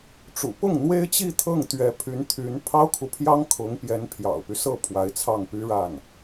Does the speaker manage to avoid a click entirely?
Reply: yes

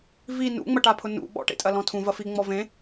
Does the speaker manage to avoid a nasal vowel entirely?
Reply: no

